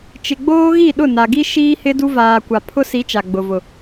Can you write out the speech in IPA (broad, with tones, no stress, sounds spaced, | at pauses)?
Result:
t͡ʃ ɪ˨ ɡ͡b oː˦ ɣ i˦˨ ɗ ʊ˦˨ n a˨ ɡ i˦ ʃ iː˦ h ɪ˦ d u˦ v aː˨ kʷ a˨ pʰ ʊ˦ s i˨˦ t͡ʃ a˨ ɡ͡b ʊ˨ v ʊ˨